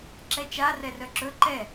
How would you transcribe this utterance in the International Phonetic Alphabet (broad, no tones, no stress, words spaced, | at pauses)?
ǁɛt͡ʃa rɛrœǁɵ ǃɛ